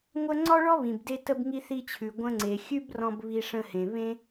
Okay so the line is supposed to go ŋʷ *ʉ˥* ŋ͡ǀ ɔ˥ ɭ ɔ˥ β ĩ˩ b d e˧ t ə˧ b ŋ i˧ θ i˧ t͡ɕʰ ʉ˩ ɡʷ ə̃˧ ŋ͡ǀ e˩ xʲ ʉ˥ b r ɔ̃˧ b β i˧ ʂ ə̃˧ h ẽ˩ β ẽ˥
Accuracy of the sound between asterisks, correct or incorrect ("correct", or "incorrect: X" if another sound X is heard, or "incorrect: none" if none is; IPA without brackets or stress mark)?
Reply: incorrect: ə˥